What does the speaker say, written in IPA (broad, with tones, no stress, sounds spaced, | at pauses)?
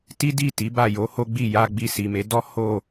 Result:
t i˦ d i˦˨ t i˨˦ b a˦˨ j o˨˦ h o˦ ɡ͡b i˦˨ j a˧ ɡ͡b i˧ s i˨ m e˨˦ d ɔ˦ h o˦˨